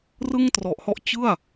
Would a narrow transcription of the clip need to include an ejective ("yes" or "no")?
no